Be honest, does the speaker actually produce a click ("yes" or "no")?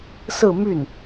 no